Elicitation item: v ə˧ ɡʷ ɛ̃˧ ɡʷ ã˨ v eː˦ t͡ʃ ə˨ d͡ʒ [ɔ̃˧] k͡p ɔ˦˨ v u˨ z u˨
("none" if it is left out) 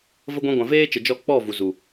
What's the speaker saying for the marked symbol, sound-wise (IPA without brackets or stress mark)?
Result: ɔ˧